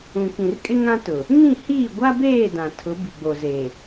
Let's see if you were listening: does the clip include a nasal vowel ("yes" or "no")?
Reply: yes